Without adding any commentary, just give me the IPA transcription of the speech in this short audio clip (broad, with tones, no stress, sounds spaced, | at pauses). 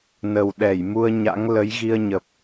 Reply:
n ə˨˩ w ɗ ɛ˧˩ j m u˧ ə̯ ɲ a̰˧˥ ŋ l ə˨˦ j ɣ i˧ ə̯ ɲ ə˨˩ p̚